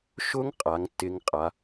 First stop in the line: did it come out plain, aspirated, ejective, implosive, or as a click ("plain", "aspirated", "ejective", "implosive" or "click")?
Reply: ejective